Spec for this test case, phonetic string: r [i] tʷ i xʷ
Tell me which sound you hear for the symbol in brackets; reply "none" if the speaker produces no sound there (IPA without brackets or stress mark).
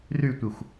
y